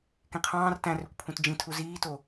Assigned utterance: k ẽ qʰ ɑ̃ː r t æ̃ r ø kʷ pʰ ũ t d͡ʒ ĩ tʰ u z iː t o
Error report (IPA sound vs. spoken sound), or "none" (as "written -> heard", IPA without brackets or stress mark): none